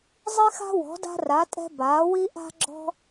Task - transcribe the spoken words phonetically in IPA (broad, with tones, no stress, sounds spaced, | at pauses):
zˤ i˦ x a̤˦ w ɔ̤˩˥ d a̤˦ r a˩˥ tʼ ɛ̤˦ b aː˩˥ w i˦ ʔ a̤˦ ɡ͡ǁ ɔ̤˦